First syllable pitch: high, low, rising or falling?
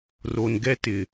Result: low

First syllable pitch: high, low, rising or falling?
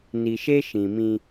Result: low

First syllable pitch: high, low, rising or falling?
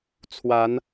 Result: rising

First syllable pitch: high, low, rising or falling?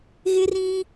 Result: high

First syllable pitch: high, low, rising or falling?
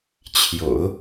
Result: low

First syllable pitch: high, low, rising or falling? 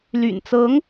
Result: low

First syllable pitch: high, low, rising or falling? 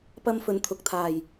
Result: high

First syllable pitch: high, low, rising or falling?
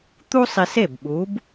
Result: high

